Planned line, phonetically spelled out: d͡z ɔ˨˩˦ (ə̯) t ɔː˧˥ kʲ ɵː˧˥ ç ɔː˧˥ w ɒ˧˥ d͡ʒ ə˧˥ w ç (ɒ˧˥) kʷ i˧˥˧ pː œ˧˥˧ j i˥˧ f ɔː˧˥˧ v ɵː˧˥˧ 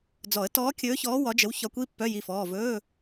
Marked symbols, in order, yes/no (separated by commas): yes, yes